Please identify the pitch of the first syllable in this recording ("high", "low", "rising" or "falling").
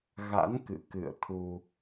rising